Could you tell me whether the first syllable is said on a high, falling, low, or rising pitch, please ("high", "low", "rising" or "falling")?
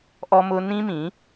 high